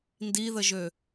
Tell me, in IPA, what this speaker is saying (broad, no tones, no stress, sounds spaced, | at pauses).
n d i ð ə ʒ ø